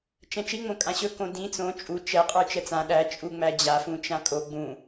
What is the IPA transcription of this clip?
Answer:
t͡ʃ ɛ̃ t͡ʃ i ŋ͡m õ kʼ ã ɕ ɵ k õ d ĩ t͡s õ t͡ʃʼ u t͡ʃ ɛ qʼ ə˞ t͡ʃ ɛ t͡s ã ɗ æ t͡ʃʼ u ŋ͡m æ d͡ʑ a f ũ t͡ʃ ã kʼ o ɡ͡b ũ

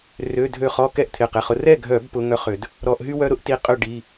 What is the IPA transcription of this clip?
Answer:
r ø˩˧˩ dʱ ø˧˩ χ ɔ˥˨ k ɛ˥˨ ʔ t̪ʰ ɪ˩˧˩ q ɪ˩˧˩ χ ʊ˨˦ r ɛ˥˨ ɡʱ œ˧˩˧ b p ʊ˨˦ ŋ œ˥ χ ʏ˧˩˧ d | ɾ ɔ˧˩˧ ʔ ɦ y˥ w œ˥ ɾ ʊ˥ ʔ t i˨˦ qʼ ʏ˥˨ ɖ i˩˧˩

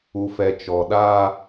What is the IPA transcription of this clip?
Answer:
u˨ f ɛ˨ t͡ʃ ɔ˨ ɗ aː˦

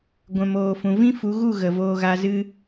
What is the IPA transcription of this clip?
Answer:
ɡʷ ɛ̃˨ m oː˨ f ũ˨ v ĩ˦ f u˨˦ ɣ u˦˨ ɣ ə˨ v oː˧ ɣ a˧ z ɨ˦

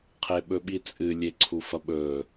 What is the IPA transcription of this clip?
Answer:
qʰ e ɓ ɵ ɓ i t͡sʼ ɨ lʲ e ǀʰ u f ɐ ɓ ɵ

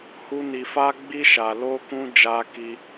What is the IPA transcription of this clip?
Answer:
h u˦ n i˧ f a˦ ɡ͡b i˦ ʃ a˧ l o˦ k ũ˦ d͡ʒ a˦ k i˦

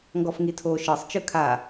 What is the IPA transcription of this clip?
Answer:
ŋ ɡ ɔ f ŋ i tʰ o ʃ ɤ sˤ t͡ʃ ɯ kʰ a

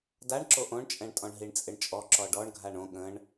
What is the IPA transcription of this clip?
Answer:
d a ɳ ǁ o ʔ õ ɳ t͡ʃʼ ɛ̃ ɳ tʼ ɔ̃ ɳ ɦ i ɳ t͡sʼ ɪ ɳ t͡ʃʼ ɔ ǁ ɔ ɖ ɔ ɳ ɡʱ a ɳ õ ɠ ə̃ ɳ

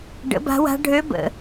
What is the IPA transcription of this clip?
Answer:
ɖ ə̰˩˥ b a̤˧˥ w a̤˧˥ ɖʱ ø˧˥ b ə̰˩

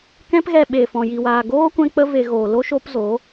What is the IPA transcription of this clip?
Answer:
k ɛ̃˦ p ɣ ɛ˧ ɓ eː˨ f ɔ̃˨ j i˨ w aː˨ ɡ oː˦ kʷ ɛ̃˧ k͡p ə˧ v e˨ ɣ oː˨ l o˦ ʃ o˦ p z o˨˦

